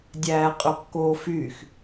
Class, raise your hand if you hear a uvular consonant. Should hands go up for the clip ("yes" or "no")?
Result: yes